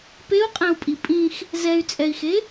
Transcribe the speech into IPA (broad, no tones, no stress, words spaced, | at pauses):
peu̯qʼɛ̃u̯pʼi pʼĩx | zɛy̯t͡sʼɛi̯xe